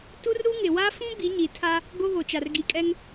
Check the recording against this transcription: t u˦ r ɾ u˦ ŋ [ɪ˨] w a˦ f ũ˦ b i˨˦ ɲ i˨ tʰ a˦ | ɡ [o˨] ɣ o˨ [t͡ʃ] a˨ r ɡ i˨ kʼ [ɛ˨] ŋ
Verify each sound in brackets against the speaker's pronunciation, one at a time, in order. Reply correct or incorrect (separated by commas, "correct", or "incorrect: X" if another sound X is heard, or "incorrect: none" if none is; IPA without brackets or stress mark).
correct, incorrect: o˦, correct, incorrect: ɛ˦